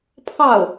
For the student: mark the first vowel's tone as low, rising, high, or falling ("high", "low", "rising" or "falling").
falling